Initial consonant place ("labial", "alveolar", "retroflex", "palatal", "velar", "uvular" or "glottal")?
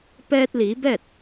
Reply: labial